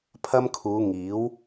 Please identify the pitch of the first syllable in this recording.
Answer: high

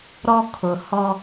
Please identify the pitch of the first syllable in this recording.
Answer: high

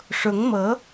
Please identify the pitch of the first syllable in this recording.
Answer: rising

